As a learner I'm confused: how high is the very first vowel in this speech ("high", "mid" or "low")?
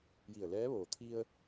high